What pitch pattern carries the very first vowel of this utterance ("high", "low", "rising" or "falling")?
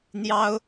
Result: high